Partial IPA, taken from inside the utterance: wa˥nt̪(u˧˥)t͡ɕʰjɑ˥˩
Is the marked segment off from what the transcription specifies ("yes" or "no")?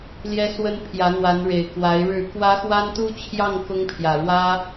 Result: yes